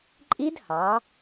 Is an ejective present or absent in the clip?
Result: present